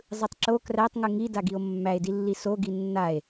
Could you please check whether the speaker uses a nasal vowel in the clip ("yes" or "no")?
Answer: no